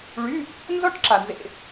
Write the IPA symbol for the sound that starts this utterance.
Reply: ɭ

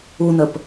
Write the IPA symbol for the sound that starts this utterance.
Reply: u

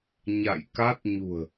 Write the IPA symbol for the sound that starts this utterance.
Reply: ɲ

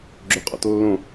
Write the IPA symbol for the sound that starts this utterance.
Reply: ɡ͡ǁ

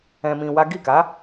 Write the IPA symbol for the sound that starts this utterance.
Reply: ɛ̃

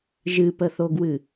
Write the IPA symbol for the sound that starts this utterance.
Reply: ʒ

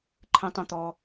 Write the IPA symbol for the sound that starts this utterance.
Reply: ǃʰ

